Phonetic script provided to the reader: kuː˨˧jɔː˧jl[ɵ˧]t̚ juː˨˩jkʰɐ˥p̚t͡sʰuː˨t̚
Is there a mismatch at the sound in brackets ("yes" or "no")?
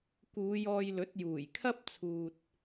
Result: yes